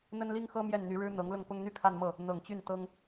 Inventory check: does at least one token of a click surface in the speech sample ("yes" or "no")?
no